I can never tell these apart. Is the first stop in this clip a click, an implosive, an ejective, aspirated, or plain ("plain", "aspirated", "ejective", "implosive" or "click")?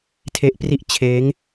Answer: aspirated